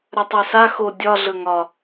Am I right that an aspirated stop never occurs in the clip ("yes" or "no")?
yes